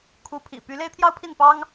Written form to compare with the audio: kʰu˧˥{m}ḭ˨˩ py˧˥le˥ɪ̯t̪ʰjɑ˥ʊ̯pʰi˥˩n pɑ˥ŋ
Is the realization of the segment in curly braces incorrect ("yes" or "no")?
yes